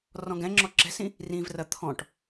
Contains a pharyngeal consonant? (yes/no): no